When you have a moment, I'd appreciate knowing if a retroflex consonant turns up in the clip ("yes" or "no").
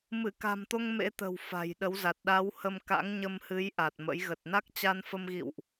no